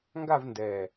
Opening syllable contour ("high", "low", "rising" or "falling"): falling